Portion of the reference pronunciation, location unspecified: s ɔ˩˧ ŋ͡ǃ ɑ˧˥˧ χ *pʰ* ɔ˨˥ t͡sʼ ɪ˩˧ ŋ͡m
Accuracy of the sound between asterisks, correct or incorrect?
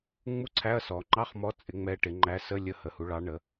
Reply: incorrect